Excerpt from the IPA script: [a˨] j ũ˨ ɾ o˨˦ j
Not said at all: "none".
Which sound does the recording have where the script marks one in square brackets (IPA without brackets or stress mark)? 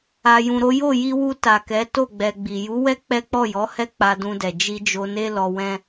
a˨